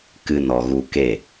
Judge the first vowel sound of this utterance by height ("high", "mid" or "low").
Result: high